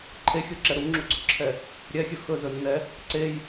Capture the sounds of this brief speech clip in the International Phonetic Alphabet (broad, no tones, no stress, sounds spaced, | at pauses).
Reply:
ǃʰ e xʲ u ǁ ɛ ɾ u ŋ͡ǁ u ɡ͡ǀ ɵ ǁʰ ɛ | ɾʲ ɛ xʲ ɵ x ɵ z ɵ nː ɛ | ǀ e j